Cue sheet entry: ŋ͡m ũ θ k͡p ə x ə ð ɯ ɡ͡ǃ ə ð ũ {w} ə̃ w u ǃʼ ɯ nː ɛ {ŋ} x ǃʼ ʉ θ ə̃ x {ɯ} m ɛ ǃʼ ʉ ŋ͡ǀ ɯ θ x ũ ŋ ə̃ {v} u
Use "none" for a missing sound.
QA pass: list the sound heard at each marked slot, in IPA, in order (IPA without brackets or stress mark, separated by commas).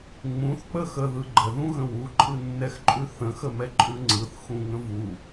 ɣ, none, ə, v